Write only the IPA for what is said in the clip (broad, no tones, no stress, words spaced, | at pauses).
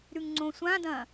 ɾʉŋŋ͡ǀõsʷãdɐ̃